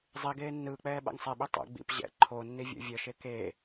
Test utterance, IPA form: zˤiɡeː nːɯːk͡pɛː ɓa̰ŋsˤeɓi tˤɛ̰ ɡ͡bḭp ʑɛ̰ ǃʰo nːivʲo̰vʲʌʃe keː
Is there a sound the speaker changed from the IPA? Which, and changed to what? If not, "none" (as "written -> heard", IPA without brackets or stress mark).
none